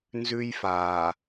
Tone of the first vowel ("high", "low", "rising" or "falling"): high